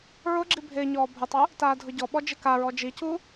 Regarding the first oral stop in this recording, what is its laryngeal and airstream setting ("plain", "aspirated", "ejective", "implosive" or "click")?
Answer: click